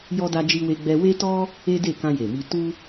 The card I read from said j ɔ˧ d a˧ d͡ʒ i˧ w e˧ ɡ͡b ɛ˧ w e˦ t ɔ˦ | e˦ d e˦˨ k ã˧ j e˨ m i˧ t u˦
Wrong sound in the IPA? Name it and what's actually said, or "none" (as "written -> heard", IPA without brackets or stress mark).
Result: none